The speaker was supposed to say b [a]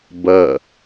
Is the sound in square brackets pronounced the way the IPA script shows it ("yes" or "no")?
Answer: no